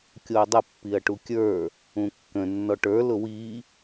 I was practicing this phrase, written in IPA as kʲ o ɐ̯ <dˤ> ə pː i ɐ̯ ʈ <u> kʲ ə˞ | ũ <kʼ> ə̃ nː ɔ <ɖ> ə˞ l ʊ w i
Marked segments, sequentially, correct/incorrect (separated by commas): correct, correct, incorrect, incorrect